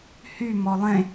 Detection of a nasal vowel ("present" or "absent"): present